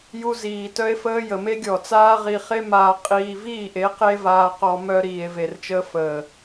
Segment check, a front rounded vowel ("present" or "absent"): present